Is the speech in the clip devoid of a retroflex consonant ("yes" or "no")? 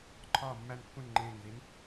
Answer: yes